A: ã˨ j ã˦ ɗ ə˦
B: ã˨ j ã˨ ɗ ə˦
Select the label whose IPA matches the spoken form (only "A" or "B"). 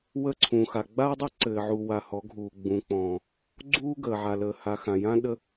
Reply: A